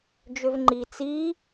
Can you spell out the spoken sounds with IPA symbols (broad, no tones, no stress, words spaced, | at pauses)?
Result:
d͡ʒøvŋ͡ǃi t͡si